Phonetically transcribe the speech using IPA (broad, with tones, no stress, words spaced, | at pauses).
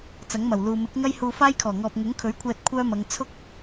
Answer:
t͡sɐ˨˥ŋmɐ˨˩wluː˨ mɪ˨˥k̚ŋɐ˥j huː˧faː˥jkʰɔː˨˩ŋɔː˨p̚ ŋʊ˨˥ŋkʰɵ˨˥ɥkʷʰɛː˧t̚ kʷʰœː˥mɐ˨˧ŋ t͡sʰʊ˥k̚